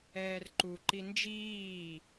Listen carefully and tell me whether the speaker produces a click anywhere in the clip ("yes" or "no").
yes